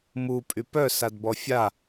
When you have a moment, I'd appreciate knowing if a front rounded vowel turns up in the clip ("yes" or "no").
yes